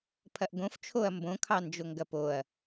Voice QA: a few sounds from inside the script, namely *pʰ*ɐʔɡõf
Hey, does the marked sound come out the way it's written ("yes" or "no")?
yes